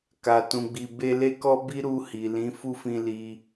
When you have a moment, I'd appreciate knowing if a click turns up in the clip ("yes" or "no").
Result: no